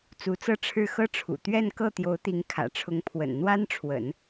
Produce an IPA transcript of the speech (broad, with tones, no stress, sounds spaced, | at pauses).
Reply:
t͡s u˧˥ t͡s ɤ˥˧ ʈ͡ʂʰ ɻ̩˥˩ x ɤ˥ ʈ͡ʂʰ ṵ˨˩ t̪ ɥ ɛ˥˧ n k ɤ˥˩ t̪ j o˧˥ ʊ̯ t̪ i˧˥ ŋ kʰ ä̰˨˩ ʈ͡ʂʰ ʊ˧˥ ŋ pʰ w ə̰˨˩ n n̪ w a˥ n ʈ͡ʂʰ w ə̰˨˩˦ n